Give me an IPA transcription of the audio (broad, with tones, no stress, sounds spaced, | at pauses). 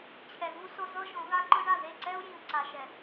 t͡ɕʰ ɛ˨ ɣ u˦ s o˦ z ɤ˦ ʒ õ˨˦ ɣ a˦ ǃ ɯ˦ ɳ a˦˨ ð e˦˨ ǀ ɛ˦ u̯ j ĩ˨ u̯ ǀ a˨ ʃ ɛ˨